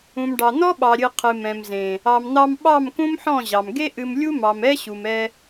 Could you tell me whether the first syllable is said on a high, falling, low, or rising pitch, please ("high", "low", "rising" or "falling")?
low